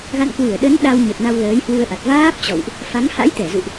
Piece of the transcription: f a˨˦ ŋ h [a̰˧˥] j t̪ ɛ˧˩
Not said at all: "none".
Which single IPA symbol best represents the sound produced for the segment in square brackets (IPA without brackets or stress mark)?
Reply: a̰˧˥